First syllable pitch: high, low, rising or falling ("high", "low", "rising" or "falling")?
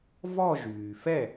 falling